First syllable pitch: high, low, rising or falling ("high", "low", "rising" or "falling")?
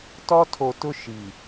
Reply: high